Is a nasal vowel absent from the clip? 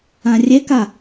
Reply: no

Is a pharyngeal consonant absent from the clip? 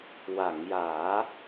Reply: yes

